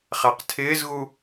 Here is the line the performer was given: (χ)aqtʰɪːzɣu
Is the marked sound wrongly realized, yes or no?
no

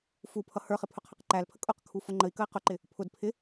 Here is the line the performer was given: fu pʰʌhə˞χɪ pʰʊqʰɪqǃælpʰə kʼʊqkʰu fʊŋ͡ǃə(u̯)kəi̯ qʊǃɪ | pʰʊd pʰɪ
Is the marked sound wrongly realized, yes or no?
yes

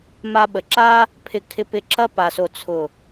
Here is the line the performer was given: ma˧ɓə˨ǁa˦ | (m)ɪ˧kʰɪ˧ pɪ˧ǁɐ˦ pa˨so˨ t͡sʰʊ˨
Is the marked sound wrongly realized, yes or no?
yes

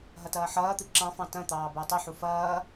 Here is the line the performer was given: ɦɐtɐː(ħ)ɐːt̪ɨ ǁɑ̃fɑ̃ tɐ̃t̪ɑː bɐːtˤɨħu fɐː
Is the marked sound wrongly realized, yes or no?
no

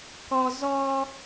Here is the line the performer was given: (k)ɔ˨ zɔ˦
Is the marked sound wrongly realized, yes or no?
no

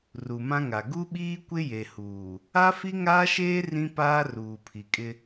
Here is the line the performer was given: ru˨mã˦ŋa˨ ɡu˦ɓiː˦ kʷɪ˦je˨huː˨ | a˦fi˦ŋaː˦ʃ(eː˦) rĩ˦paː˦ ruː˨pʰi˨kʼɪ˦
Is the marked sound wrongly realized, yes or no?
no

